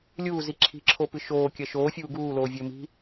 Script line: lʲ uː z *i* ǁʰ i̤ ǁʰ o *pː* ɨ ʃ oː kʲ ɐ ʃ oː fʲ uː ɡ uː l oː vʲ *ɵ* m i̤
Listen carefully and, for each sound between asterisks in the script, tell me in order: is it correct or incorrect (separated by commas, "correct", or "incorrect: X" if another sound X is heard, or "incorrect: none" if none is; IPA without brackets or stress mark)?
correct, incorrect: p, correct